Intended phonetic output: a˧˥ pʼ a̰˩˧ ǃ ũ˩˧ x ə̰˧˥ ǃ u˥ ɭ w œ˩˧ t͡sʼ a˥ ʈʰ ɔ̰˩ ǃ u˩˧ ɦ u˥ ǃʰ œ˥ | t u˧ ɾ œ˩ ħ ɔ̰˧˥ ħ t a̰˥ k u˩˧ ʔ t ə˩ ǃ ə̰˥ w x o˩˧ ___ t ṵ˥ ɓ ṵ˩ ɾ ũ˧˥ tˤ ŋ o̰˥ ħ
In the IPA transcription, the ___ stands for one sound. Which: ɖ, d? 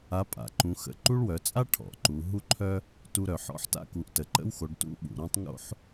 ɖ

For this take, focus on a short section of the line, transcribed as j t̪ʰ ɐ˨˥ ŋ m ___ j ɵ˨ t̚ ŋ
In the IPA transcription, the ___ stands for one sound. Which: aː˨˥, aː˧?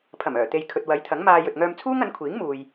aː˧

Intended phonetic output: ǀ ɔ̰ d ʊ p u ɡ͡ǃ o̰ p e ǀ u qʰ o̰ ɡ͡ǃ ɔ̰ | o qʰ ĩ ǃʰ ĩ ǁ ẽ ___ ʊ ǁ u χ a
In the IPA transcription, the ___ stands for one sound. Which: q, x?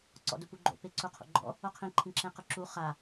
q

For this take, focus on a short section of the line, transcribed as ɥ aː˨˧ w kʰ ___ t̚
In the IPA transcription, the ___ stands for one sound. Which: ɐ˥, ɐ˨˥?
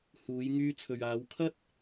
ɐ˥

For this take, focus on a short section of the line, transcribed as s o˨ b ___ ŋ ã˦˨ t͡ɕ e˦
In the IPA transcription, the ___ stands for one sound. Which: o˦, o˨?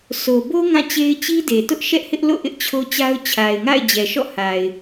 o˦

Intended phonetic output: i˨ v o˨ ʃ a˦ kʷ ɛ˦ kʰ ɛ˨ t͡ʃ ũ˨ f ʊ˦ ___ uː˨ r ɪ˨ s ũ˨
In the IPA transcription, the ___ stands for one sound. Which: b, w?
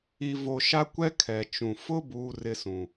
b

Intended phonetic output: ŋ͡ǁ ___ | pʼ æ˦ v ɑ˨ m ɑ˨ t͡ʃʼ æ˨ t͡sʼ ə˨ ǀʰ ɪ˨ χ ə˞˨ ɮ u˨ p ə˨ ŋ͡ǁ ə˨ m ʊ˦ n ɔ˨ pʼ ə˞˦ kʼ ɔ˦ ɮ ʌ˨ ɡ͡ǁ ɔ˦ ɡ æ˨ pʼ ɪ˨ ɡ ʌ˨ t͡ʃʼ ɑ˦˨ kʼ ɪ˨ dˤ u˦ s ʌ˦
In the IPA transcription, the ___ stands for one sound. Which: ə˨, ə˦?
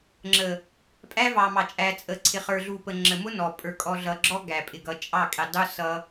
ə˨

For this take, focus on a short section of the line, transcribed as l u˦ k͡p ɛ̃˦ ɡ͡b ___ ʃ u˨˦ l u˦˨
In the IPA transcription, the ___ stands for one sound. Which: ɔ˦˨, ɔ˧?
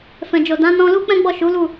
ɔ˦˨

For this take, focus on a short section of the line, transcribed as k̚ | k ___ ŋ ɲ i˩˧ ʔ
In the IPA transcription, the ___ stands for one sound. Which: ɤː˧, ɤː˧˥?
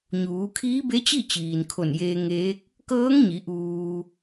ɤː˧˥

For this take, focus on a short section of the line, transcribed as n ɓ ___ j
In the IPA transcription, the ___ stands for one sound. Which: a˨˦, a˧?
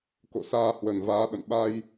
a˧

